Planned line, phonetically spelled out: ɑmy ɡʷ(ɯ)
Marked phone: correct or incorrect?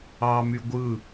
correct